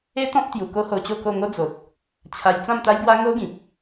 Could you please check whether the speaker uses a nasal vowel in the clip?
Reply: yes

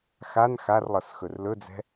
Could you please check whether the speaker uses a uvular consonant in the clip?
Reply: no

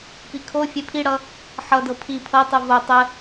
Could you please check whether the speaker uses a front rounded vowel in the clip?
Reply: no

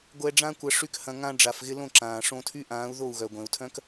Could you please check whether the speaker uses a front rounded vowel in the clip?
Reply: yes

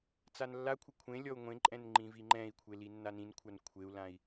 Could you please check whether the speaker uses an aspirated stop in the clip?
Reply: yes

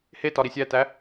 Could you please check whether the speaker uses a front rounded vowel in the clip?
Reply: no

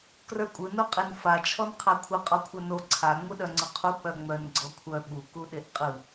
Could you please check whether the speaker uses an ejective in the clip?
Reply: yes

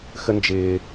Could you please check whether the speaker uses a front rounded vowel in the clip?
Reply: no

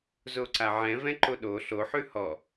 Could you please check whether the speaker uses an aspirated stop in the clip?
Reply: no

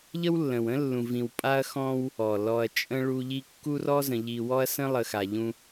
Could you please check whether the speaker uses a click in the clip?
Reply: no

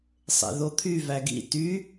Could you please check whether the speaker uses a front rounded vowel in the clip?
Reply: yes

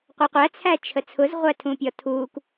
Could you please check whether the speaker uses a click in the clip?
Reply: no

